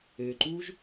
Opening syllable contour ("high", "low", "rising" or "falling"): low